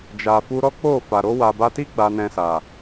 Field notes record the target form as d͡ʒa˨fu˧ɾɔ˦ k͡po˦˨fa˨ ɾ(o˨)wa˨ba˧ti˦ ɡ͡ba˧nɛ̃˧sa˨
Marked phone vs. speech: incorrect: o˧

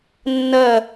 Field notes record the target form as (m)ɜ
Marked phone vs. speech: incorrect: nː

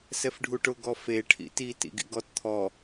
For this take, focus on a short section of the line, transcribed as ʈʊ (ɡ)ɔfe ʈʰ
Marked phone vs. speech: correct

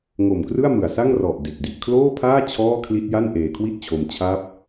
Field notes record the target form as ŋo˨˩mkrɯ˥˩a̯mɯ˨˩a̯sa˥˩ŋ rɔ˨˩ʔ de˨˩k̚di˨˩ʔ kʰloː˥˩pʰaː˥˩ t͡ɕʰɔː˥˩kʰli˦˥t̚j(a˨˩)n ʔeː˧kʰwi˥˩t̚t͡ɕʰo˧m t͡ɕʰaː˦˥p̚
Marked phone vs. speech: incorrect: a˥˩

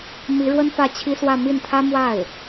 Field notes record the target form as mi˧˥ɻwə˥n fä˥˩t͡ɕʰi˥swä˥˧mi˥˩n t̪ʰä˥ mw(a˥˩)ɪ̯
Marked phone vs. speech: correct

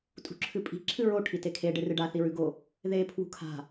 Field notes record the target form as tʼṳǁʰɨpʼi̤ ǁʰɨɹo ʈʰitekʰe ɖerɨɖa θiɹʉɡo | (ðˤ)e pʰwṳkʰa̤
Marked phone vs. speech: incorrect: ð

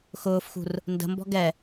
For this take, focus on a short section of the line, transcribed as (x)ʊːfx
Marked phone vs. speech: correct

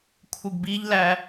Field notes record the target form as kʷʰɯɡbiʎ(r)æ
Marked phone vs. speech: incorrect: l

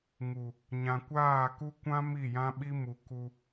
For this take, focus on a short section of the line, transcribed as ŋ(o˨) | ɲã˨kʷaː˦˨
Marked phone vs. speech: incorrect: u˨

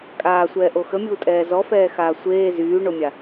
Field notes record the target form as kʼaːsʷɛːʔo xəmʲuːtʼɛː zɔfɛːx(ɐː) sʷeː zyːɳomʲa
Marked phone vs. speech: incorrect: aː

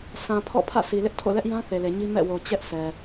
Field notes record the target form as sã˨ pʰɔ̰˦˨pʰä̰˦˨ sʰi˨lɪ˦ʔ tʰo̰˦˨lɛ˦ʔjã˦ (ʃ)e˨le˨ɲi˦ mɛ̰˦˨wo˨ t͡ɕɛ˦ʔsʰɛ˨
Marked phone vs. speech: incorrect: θ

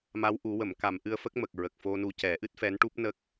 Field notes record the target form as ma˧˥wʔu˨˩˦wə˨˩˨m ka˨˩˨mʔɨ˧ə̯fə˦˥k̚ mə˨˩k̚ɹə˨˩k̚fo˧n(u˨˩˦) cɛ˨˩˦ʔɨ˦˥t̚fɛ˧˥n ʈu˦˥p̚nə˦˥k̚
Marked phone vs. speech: incorrect: u˧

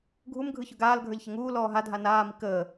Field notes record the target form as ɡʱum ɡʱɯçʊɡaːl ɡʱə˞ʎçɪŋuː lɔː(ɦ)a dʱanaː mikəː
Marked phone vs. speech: correct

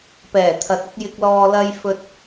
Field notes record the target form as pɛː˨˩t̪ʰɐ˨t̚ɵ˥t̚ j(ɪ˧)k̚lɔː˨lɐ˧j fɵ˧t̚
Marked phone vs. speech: incorrect: ɪ˨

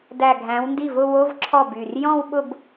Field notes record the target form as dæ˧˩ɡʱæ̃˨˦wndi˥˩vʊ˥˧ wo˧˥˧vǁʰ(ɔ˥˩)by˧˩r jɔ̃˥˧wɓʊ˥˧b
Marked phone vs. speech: correct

